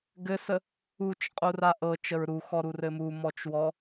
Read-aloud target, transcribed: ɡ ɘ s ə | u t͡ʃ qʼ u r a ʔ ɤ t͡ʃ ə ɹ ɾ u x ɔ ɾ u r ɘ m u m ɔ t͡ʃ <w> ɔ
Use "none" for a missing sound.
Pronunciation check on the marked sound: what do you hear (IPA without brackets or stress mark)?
w